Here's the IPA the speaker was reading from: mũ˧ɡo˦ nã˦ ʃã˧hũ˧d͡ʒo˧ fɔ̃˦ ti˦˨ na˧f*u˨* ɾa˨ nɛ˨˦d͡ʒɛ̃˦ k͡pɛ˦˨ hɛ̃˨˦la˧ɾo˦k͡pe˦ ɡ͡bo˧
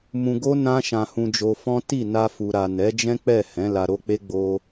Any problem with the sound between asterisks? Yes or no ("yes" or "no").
no